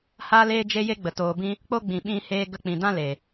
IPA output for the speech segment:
h aː˦ l eː˦ d͡ʒ e˦ j e˦ ɡ͡b ə˨ t oː˨ b ĩ˧ | k͡p o˦ ɡ͡b ĩ˨ ɓ ĩ˧ h eː˧ ɡ ə˧ k͡p ĩ˨ d ã˦ l eː˨

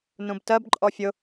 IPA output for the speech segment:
n ũ b t ɜ b ǃʼ ɔ fʲ ʊ

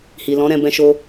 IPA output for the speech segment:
h i˨ l ɔ̃˨˦ ɾ ɛ̃˧ b ɛ̃˧ ʃ o˧

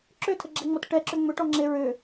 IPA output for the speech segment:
ǁ ʏ tʰ ə ɡ͡ǁ ɛ ŋ͡m ɔ t ʈ ɛ ǁ ʏ ŋ͡m ʏ ʈ ɔ ŋ͡ǁ e ɹ ʏ

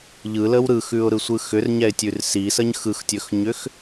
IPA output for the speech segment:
ʎ ɯ l ə w ɾ ɯ x ʉ ʊ̯ ɾ ɯ sʷ ɯ x ʏ r ɲ ɛ ɪ̯ tʲ ʉ r s i s ə ɲ x ɯ x tʲ ɵ x ɲ ʏ x

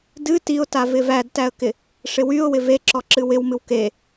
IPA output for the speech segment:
d ɨ t i ʊ̯ t a v ɪ v æ d t æ ə̯ k ɪ | ʂ ɪ w y ʊ̯ w ɪ v e ǁ ɔ ǁ ɨ w ɪ w m ɨ w k e

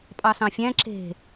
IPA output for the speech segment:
pʼ ɑ s ɑ̃ fʲ æ̃ ǁ e̤

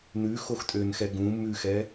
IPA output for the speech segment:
n ʉ x o x tʼ ø n x ɛ ɡ ũ m ʉ x ɛ

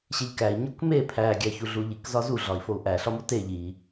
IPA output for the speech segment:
ɕ e ʎ k æ i̯ ɲ o k m e pʰ æ ɡʲ æ ç u ɮ u ʎ i k z ɒ z u ɮ ɒ i̯ f o u̯ ʔ æ ɬ ɒ m o t e ʎ i

